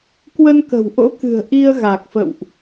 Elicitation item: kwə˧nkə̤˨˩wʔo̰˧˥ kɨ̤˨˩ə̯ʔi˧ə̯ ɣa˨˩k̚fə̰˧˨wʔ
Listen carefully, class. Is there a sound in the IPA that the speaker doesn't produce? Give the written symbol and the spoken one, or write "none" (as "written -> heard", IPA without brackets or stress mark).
none